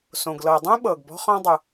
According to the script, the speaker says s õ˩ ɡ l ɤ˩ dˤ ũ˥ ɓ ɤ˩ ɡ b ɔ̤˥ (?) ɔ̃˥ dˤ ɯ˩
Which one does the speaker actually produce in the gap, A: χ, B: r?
A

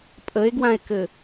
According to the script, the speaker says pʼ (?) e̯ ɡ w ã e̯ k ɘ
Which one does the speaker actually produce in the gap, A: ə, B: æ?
A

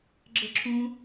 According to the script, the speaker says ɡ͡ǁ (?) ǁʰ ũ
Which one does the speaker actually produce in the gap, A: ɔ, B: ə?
B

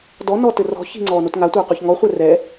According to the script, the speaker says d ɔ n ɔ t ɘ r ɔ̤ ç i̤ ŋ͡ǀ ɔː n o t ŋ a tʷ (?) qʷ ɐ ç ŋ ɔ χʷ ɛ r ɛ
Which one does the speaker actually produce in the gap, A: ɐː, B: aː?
A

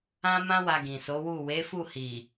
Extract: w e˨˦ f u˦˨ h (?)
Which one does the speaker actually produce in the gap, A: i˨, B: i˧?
A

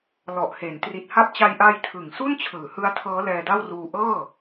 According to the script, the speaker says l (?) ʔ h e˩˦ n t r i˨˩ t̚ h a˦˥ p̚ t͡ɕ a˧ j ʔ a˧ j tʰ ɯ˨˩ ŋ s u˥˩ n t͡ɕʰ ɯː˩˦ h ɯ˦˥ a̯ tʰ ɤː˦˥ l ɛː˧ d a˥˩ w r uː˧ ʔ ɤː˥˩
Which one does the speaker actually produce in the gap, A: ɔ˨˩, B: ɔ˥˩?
A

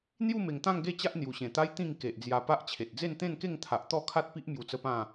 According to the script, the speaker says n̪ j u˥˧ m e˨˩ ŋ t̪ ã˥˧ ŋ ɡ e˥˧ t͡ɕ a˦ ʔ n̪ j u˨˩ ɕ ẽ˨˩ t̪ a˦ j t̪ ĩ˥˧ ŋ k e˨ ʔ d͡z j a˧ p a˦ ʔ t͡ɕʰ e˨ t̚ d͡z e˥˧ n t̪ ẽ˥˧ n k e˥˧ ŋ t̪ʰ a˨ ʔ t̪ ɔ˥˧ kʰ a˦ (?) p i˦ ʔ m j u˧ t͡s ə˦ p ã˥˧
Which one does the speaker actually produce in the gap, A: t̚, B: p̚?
A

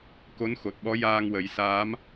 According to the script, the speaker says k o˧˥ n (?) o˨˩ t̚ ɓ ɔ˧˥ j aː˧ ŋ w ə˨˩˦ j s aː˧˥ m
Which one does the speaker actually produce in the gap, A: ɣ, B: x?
B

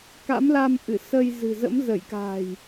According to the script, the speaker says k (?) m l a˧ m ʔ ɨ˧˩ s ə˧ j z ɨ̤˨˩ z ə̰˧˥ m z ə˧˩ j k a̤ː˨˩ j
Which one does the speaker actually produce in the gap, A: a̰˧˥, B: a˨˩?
A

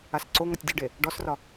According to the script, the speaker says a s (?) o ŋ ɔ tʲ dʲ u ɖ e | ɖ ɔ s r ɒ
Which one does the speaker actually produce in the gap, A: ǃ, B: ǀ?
B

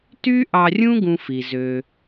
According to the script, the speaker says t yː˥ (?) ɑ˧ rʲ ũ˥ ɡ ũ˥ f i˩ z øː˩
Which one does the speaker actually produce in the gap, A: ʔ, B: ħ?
A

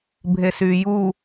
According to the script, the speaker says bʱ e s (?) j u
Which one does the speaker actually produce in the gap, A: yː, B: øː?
A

